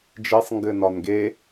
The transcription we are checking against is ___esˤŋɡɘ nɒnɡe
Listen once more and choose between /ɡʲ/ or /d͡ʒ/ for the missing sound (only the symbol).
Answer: d͡ʒ